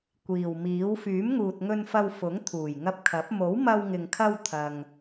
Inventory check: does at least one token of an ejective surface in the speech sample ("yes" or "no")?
no